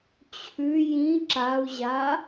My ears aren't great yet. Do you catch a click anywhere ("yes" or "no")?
yes